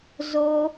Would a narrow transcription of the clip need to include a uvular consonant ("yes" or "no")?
no